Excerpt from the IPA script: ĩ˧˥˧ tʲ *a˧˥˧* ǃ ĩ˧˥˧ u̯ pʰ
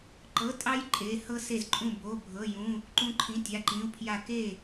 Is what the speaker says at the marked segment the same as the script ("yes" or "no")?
yes